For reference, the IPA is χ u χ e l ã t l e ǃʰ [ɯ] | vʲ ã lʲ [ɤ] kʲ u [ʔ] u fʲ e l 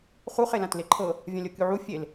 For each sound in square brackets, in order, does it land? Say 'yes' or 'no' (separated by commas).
no, yes, no